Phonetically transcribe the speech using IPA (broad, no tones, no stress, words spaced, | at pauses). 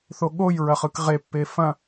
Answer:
θoɠoj ɹɐχɯkʁe pːefɐ̃